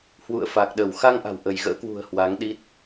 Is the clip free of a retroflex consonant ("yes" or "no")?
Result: yes